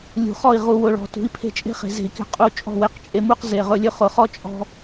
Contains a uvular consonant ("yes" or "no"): yes